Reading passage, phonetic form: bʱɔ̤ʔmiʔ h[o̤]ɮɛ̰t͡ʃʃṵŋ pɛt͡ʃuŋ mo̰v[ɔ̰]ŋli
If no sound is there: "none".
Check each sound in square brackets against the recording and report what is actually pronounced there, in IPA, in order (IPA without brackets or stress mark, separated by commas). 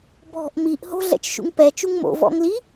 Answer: o̤, ɔ̰